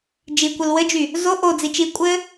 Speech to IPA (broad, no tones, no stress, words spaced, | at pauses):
d͡ʒikʷɘl wɘd͡ʒy | zo ʔo d͡zit͡ʃi kʷʼɘ